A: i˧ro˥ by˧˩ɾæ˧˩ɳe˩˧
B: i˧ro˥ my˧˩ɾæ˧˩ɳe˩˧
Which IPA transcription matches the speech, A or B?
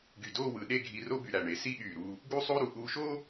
A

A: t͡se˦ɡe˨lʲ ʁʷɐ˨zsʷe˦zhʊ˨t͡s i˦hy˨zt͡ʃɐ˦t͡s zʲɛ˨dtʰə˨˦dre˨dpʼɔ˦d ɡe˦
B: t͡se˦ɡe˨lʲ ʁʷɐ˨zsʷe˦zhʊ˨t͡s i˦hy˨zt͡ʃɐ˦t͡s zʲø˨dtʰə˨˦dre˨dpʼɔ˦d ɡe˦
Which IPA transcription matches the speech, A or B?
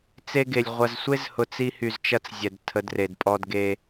A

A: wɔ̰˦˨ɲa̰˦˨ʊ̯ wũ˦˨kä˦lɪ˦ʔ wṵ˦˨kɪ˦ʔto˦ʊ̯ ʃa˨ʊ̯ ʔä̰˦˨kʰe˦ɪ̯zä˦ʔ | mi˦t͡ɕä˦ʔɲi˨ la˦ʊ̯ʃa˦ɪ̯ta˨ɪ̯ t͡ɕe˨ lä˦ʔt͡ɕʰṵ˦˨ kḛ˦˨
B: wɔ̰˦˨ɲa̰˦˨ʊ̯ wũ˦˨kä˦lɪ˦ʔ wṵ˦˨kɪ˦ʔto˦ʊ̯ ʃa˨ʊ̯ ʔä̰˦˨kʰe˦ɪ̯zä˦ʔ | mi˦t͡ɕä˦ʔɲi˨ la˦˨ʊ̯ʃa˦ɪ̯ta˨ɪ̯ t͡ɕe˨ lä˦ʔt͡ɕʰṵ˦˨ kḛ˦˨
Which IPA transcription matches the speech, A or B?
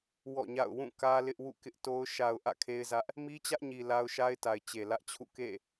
A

